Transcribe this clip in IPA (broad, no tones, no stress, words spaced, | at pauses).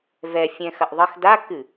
vɛ fʲɛ̃xɐʔðˤəx dakɨ